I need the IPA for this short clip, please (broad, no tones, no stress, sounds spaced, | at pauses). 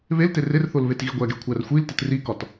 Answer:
β e l t e r e r θ o l β e t ɣ i ɡʷ æ ɡ e kʷʰ æ r xʷ i l t e t r i k ɒ t